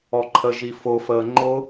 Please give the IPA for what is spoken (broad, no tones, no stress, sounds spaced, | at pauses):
ɔ ǃʰ ə ʒ i f ʊ f əː ŋ͡ǃ ʊ